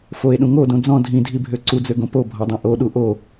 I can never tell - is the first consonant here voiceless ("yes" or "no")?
yes